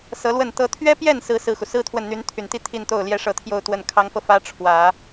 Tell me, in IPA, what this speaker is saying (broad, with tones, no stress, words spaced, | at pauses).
sɤ˧˥lwə˥˩n t̪ɤ˥ t̪ʰɥɛ˥pjɛ˥˩n sɹ̩˥sɹ̩˥˩xu˩ sɹ̩˥ t̪ʰwə˥˩nn̪y˧˥nt̪ʰy˨˩nt̪i˥˧ t̪ʰi˥˧nt̪o˥˩ʊ̯ljɛ˥ ʂɤ˥˧t̪ʰjo˥˧ʊ̯t̪wə˥˩n kʰɑ˧˥ŋfɤ˧ fä˥ ʈ͡ʂʰwä˨˩˦